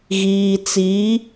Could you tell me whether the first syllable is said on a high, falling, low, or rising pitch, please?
low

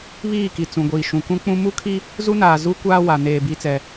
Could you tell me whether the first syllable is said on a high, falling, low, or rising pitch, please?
falling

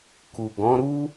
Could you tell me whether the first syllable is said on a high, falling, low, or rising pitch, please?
low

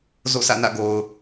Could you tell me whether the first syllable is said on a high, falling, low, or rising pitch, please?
falling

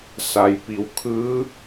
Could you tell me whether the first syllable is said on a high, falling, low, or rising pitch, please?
low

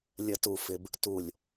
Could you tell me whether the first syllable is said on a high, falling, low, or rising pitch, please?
low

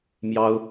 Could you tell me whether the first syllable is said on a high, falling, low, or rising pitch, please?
high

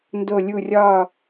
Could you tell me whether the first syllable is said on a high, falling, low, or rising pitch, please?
falling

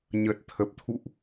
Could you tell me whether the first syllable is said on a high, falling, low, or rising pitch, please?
low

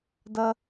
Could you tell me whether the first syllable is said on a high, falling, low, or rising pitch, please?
low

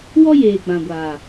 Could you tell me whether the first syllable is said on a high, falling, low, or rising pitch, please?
high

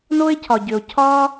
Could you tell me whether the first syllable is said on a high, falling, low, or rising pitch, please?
high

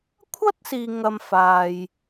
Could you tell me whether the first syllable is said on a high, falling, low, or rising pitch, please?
high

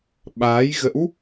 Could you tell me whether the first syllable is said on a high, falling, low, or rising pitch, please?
rising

